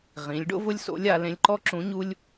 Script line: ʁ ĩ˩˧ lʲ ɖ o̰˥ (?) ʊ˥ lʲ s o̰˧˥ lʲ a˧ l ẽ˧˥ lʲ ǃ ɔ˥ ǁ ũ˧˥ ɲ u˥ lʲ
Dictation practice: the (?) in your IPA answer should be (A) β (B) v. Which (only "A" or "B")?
B